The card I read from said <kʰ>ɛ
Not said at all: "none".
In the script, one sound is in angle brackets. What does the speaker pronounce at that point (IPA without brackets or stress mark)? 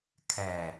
kʰ